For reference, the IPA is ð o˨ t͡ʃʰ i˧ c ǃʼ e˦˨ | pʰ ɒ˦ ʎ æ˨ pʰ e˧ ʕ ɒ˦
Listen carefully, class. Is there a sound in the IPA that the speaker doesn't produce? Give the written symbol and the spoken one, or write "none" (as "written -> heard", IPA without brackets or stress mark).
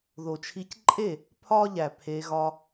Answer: ʕ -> ɣ